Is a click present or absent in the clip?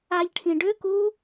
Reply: absent